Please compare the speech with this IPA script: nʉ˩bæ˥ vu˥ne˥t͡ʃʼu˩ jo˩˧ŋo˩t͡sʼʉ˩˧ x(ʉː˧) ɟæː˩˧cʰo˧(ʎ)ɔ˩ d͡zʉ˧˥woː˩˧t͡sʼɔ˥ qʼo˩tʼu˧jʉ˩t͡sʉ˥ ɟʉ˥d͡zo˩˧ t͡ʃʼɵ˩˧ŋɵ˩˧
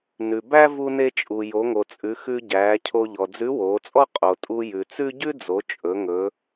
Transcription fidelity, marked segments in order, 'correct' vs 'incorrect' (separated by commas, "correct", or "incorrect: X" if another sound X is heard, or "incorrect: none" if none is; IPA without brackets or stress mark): incorrect: ʉ˧, correct